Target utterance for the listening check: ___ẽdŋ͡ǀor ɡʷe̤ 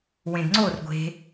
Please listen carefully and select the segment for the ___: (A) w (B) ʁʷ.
A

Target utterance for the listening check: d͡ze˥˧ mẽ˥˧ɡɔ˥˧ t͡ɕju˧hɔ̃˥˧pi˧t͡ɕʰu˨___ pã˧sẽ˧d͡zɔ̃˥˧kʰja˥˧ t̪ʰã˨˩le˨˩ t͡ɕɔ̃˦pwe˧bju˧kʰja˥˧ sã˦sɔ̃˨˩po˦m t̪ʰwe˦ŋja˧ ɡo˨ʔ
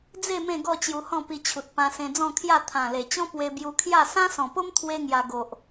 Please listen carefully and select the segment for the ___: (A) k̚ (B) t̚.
B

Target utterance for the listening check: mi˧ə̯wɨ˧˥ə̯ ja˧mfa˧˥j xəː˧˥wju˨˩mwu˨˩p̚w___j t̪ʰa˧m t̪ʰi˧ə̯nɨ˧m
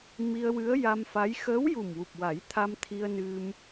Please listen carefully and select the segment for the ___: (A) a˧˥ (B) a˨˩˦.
B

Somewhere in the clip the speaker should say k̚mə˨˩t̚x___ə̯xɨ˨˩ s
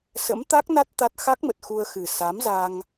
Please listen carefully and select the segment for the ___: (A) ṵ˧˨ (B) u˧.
B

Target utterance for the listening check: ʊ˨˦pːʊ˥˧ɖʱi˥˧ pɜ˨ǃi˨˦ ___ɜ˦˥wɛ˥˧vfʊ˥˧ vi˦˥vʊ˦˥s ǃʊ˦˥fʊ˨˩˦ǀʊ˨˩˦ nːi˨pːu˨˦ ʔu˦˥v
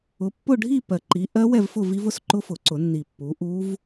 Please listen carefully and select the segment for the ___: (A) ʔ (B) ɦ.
A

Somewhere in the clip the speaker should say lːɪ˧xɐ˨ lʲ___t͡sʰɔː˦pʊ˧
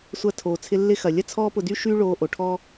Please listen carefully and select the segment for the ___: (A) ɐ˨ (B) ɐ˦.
B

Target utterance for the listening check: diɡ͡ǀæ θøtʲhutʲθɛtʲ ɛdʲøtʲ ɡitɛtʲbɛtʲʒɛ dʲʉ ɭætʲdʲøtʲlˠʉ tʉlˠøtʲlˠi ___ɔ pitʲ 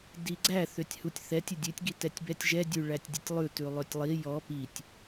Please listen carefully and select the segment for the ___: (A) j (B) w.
A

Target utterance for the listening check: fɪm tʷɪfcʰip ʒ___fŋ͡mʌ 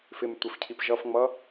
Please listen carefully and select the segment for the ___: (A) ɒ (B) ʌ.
B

